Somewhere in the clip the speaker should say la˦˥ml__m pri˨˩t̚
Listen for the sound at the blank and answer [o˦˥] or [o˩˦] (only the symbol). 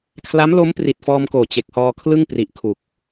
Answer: o˦˥